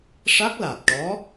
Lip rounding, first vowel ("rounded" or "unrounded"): unrounded